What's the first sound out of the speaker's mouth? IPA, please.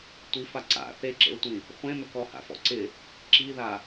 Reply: tʷ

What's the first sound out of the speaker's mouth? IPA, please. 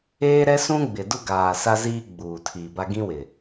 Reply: eː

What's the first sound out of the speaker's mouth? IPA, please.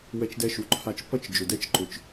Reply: w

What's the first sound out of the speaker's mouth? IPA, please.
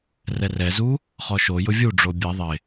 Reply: r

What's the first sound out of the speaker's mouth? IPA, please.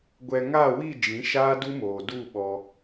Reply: ɡʷ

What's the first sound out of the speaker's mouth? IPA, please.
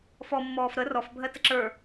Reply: f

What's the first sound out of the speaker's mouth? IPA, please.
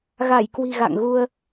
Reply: ɣ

